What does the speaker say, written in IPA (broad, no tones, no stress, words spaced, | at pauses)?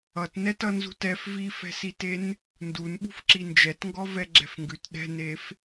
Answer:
ʌtnɛt ʌnzṳtɛf vifɛ̤siten | ndunɓṳfǁi nd͡ʒɛtŋɡɔ vɛɡ͡ǁɛ̤fŋɡʉt ɗɛ̤nef